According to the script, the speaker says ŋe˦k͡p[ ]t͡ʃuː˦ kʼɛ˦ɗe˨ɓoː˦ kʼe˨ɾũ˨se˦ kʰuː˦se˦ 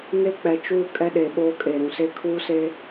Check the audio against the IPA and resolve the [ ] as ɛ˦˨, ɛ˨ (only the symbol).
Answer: ɛ˨